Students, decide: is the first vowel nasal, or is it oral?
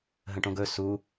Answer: nasal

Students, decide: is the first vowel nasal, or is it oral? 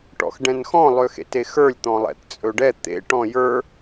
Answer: oral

